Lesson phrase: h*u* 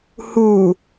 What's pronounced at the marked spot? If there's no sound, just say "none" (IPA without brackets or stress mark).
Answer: u